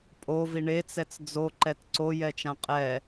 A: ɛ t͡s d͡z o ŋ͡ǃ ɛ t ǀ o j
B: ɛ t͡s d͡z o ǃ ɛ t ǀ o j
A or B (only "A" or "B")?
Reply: B